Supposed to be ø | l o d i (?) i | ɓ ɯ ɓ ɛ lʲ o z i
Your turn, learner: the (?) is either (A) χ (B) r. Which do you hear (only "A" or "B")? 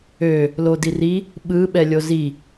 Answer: B